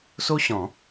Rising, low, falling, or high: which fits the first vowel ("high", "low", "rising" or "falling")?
high